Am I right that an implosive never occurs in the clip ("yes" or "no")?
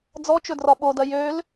no